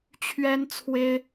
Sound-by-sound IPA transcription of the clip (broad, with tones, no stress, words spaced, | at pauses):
t͡ɕʰɥɛ˥nt͡sʰwe˥ɪ̯